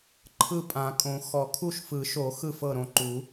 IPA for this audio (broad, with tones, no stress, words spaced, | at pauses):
ǃʰɯ˥˨pʼã˨˩˦kʼõ˨˩˦ xɔ˨˩˦kʰu˥˨ʃ fɯ˨˩˦ʃo˨˩˦ xɯ˥˨fɤ˥˨ɾõ˥˨ ǃu˨˩˦